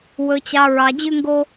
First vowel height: mid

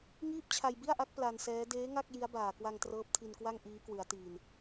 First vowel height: high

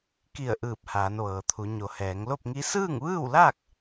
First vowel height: high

